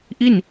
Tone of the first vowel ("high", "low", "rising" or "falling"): falling